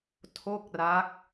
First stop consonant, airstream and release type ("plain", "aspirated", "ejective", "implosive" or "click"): aspirated